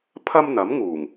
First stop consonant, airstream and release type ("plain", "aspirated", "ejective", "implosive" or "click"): aspirated